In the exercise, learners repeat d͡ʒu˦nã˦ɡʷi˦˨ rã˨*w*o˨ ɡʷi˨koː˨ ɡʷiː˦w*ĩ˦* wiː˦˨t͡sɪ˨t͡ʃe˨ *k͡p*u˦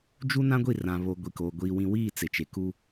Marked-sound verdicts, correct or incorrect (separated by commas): incorrect, correct, incorrect